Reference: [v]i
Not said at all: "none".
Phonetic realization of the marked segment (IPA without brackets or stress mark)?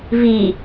v